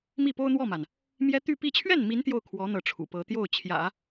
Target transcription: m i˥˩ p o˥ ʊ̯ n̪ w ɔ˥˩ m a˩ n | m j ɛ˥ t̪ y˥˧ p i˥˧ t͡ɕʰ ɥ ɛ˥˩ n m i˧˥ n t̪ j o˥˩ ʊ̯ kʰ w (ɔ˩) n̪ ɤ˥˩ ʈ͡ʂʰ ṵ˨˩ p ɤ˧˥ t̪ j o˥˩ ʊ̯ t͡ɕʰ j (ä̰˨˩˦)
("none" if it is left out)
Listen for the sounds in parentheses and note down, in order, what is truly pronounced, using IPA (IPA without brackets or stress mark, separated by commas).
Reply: ɔ˧˥, ä̰˨˩˦